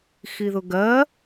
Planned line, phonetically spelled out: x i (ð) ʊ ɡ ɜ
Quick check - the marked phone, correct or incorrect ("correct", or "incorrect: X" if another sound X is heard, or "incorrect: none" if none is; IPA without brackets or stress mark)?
correct